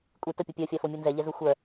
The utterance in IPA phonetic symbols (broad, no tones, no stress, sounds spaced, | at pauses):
kʷʼ i t ə pʲ u pʲ œ fʲ a f o mʲ u n z ɛ ʎ ɛ z u xʷ œ